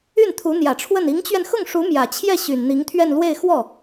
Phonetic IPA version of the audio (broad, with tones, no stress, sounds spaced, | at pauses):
y˥˩ n t̪ʰ u˧˥ n̪ j ä˨˩ ʈ͡ʂʰ w ə˥˩ n i˧˥ ŋ t͡ɕ ɥ ɛ˧ n x ʊ˥˩ ŋ ʂ u˧˥ m j ä˨˩ t͡ɕʰ j ɛ˥˩ ɕ y˨˩ n n̪ i˧˥ ŋ t̪ʰ ɥ ɛ˥˧ n l w e˥˧ ɪ̯ x w ɔ˥˩